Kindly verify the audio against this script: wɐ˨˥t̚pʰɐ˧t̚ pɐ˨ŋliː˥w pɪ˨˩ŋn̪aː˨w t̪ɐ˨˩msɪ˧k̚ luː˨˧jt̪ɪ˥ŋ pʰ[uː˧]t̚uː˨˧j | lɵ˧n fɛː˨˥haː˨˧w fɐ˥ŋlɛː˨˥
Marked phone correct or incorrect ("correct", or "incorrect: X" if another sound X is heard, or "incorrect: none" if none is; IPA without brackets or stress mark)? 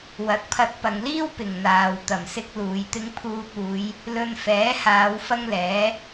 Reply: correct